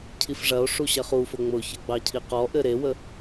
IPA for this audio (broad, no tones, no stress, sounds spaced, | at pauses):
cʰ i f ʐ ɐ o̯ ʂ u ɕ ɐ χ u f ʊ ŋ͡m ʊ ç ə ɡ͡b ɑ cʰ i q ɔ ʔ ɘ ɾ e w ə